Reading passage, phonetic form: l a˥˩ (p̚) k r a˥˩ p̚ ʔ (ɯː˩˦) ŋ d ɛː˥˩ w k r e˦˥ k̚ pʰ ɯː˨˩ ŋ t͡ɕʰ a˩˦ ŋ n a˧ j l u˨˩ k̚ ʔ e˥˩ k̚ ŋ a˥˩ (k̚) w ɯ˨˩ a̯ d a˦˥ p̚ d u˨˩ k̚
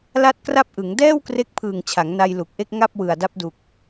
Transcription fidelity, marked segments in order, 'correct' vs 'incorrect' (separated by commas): incorrect, incorrect, incorrect